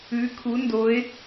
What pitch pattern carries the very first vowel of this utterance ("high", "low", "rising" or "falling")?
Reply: rising